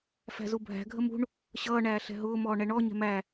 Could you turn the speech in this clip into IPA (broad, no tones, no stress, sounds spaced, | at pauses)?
f æ̤ z u bʱ æ̤ ɡʱ ə m ṳ ɳ | ɕ ʌː ɳ æː ɬ ɛ̤ ɦ ʊː m ɔː ɳ ɛ ɳ ɔ ɲ ɛ̤ m æ